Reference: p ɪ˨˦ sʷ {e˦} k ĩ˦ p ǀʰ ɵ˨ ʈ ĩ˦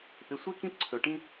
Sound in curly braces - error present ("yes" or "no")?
no